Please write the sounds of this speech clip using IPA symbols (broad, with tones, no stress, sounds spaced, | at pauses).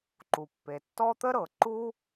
ǃ u˩ pː e˩ tː ɔ˦ t̪ ə˥ ɾ ɤ˩ ǃ u˥